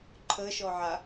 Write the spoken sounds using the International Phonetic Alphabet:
ǃʰ ə ʃ ɔ ʕ a

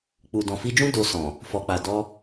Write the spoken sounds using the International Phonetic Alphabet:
k͡p u˨ d ɔ̃˨ f i˧ d͡ʒ ũ˦ d o˧ s ɔ̃˨ | f ɔ˨ k͡p a˨ d ɔ˧

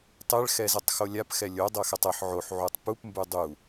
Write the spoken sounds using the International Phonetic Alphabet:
tˤ ɛ ɭ x ɛ z ɛ tˤ x o lʲ a p x ɛ lʲ o dˤ ɤ x ɛ tˤ ɤ ħ ʕ o ħ ʕ u tˤ p u p m b u dˤ u

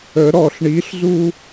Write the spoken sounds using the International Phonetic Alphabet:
ə ɾ ɔ ɬ ɳ i ɬ z u

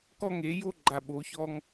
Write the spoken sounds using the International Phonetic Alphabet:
k ɔ˥ ŋ e˧˥ j o˥ ɡ͡ǃ a˧ ɓ o˧˥ ç ɔ˥ ŋ

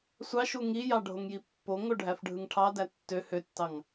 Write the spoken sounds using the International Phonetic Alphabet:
sʷ ɑ ʃ u ŋ i j ɑ ɖʱ o ŋ j i pː o ŋ o ɖʱ æ f ɖʱ ɯ ŋ ʈʰ ɑ d æ tː ø h ø tː ɑ ŋ

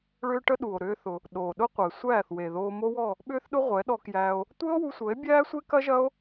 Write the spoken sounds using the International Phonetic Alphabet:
ɭ ʏː˦ ʈ ə˦ ɗ u˨ o̯ ɾ ʏː˦ θ ʊ˧ | ɗ oː˨ ɗ ʊ˦ qʷ ɐ˨ e̯ sʷ æː˦˨ θ w e˨ ð oː˧ m o˦ w ɔ˦˨ | ɓ ʏː˦ θ ɗ ʊ˦ ʁʷ ɛ˨˦ ɗ ɔ˧ k j æː˧ o̯ | tʷ əː˦ o̯ w u˧ sʷ əː˨˦ e̯ bʲ æː˦ sʷ e˦ k ɐ˦ ʒ ɐ˦ o̯

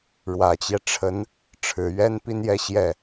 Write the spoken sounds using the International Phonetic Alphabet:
ɻ w ä˨˩ t͡ɕ j ɛ˦ ʈ͡ʂʰ ə˧˥ n | ʈ͡ʂʰ ɻ̩˨˩ ɥ ɛ˥ n p i˥ n j ɛ˥˧ ɕ j ɛ˥˩

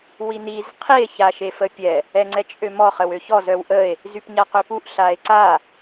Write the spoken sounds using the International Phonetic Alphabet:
w i n i z qʰ i e̯ ç a ʃ e f ə pʲ ɛ | ɛ ŋ͡ǀ ɛ t͡ʃʼ ø m ɔ χ ə w ø ç ɔ z œ w ʔ ə e̯ | z y p ɲ a q ø p u ʔ ɬ a e̯ ǀ a

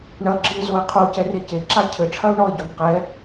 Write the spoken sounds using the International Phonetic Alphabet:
ɳ ɐ ɡ͡ǁ ɨ ɪ̯ z o ɪ̯ qʰ o c ɛ r e c e ǁ a cʰ ɘ ʈ͡ʂʰ ɐ ʊ̯ ɳ ɔ ɪ̯ ɟ o n q ɛ

